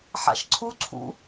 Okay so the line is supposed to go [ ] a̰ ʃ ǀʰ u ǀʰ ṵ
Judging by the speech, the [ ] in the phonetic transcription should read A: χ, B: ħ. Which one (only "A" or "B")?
B